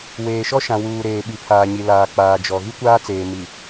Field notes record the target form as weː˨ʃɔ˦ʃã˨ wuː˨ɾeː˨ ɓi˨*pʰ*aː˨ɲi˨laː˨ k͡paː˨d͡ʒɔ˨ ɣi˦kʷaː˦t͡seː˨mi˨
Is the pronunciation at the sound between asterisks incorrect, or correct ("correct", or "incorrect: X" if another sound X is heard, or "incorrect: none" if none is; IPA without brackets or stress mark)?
correct